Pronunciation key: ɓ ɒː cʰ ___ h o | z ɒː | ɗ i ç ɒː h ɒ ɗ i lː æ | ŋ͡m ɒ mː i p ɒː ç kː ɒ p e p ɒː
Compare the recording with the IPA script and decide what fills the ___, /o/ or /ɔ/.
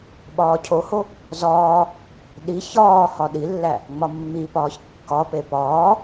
o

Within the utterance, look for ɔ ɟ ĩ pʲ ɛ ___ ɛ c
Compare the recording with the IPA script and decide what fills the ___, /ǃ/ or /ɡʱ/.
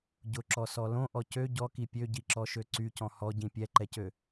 ǃ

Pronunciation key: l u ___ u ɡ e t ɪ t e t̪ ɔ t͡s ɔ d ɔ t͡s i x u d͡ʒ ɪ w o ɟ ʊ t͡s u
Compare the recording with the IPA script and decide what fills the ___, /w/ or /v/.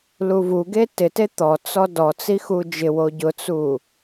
v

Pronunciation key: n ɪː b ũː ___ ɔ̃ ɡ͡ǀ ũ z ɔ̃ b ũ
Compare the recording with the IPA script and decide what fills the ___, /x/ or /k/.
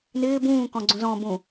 k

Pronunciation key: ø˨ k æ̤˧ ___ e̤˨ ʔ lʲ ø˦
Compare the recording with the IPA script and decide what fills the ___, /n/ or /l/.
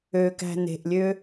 n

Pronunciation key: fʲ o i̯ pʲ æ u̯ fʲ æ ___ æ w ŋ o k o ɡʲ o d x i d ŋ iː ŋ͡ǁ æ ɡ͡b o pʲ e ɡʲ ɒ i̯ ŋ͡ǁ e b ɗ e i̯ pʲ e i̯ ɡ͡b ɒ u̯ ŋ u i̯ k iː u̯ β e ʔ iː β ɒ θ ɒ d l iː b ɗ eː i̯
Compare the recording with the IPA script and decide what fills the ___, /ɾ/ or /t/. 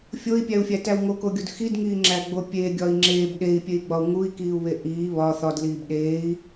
t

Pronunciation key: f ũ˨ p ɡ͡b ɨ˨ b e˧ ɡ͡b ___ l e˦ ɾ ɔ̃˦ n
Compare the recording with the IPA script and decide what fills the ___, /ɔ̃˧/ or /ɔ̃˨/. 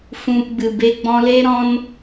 ɔ̃˧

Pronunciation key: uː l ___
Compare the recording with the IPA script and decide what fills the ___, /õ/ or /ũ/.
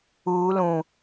ũ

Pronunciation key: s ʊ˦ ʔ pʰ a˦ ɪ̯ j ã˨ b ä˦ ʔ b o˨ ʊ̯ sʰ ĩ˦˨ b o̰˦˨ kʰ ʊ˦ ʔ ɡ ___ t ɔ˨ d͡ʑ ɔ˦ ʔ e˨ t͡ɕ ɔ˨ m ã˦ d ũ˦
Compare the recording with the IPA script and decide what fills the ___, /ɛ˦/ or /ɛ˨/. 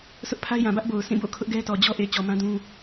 ɛ˦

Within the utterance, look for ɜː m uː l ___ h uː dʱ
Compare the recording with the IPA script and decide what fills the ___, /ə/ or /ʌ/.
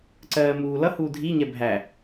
ʌ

